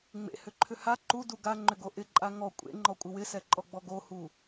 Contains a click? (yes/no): yes